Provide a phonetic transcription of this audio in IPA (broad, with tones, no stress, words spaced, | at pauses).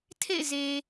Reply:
tʰḛ˦˨ɪ̯ze˨